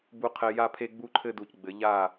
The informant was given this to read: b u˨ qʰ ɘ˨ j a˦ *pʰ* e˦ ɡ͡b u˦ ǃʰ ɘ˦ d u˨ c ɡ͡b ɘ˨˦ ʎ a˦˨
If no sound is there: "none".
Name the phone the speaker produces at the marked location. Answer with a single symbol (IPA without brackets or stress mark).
pʰ